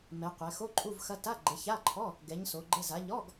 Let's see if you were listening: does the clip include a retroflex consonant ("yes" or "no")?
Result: no